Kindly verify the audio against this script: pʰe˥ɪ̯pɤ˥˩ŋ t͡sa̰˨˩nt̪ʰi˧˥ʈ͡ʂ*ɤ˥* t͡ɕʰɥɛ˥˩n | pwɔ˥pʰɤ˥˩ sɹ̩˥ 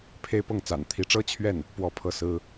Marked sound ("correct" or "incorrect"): correct